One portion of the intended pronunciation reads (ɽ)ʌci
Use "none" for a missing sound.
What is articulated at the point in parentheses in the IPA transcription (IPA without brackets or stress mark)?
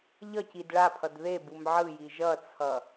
ʎ